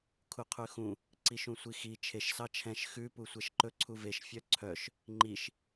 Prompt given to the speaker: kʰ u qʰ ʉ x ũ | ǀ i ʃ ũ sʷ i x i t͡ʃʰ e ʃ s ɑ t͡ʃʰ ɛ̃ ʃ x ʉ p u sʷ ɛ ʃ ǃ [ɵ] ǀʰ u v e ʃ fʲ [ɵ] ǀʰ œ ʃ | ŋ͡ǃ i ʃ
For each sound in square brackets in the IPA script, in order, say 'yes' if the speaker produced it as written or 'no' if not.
yes, no

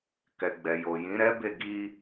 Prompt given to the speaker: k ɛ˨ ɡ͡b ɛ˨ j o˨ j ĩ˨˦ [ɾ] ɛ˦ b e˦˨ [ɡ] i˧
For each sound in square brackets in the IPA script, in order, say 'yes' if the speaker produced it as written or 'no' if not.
yes, yes

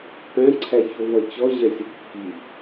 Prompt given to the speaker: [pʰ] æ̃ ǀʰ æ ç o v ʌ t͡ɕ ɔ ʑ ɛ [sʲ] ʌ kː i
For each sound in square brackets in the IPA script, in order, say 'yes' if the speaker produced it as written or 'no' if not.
no, yes

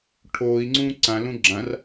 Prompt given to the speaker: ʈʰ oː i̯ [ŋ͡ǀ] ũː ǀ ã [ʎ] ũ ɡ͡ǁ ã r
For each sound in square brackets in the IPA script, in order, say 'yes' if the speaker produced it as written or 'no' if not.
yes, no

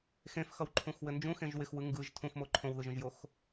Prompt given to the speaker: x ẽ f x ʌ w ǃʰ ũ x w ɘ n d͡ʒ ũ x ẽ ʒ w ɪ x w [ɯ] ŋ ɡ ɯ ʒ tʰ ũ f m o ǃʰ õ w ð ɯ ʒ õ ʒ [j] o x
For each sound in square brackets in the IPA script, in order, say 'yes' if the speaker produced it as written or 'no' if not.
yes, yes

